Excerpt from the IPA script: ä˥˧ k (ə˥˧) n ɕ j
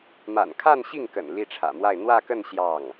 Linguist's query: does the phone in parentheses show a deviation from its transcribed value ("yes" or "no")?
no